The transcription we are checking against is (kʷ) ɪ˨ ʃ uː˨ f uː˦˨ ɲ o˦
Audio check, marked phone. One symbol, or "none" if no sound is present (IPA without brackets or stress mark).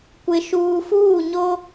kʷ